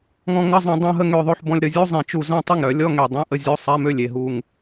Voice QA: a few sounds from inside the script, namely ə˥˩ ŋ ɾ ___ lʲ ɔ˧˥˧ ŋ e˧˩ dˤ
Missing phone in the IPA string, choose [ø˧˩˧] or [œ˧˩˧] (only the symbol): œ˧˩˧